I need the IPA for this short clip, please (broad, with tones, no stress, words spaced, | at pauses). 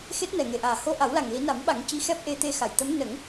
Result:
xe˦˥t̚nɛ˨˩ŋe˨˩ʔaː˨˩ ho˧ʔa˨˩˦wla˨˩ŋ li˨˩˦na˨˩˦mɓa˨˩˦ŋ ci˧˥xɛ˦˥p̚ʔe˧ t̪e˧xa˨˩˨jt̪ə˧˥m nə˨˩˦ŋ